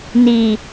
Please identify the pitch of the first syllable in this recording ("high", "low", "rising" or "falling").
low